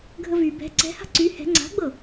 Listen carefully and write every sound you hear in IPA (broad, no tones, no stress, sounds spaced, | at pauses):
ɡʱ ə v y b ɛ̤ ǀ ɛ̤ h a̤ ǀ y h ɛ̤ ŋ͡ǀ a̤ ɡ͡b ɤ